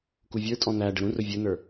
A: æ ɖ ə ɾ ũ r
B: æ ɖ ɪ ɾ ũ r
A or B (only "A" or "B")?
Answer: A